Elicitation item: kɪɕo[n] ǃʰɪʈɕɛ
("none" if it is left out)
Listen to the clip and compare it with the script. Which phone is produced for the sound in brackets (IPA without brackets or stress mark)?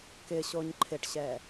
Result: ɲ